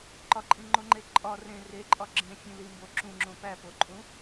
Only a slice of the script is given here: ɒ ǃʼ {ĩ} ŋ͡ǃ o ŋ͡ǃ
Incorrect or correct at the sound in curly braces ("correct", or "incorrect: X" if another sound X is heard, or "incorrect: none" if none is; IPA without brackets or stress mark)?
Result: correct